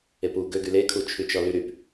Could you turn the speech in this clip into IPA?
e p u ɡ ø ɡ y l e kʰ u t͡ʃʰ y t͡ʃ ɔ l y ɾ y p

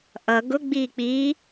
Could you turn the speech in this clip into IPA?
ʔ ʌ ɡ ʊ ɡ͡b iː k͡p iː

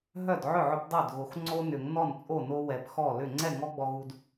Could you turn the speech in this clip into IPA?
ɦ œ˥˩ d ʕ ʏ˥˩ ʕ ʏ˦ p dˤ œ˥˩ d ɣ o˨ x ŋ͡ǀ o˦ n ʏ˨˩˦ ŋ n ɔ˥˩ n t͡sʼ o˥˩ n o˦ w ɛ˨ p x ɔ˥˩ l ʏ˥˩ ŋ͡ǀ ɛ˥˩ ŋ ɔ˦ ɡ͡b ɔ˨ ɣ u˨ d

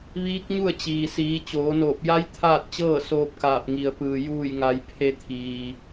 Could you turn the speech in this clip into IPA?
ʋ iː˧˥ k̚ ɲ u˥˨ ə̯ t͡ɕ iː˩ s iː˩˧ t͡ɕ oː˩˧ n oː˧˩ p̚ j a˧˥ j t̪ʰ aː˥˨ t̚ t͡ɕ ɤː˥˨ s oː˧ p̚ k aː˧˩ p̚ ŋ i˩ ə̯ p ɯː˩ j uː˧˩ j ŋ a˩˧ j pʰ e˧ t̪ʰ iː˩

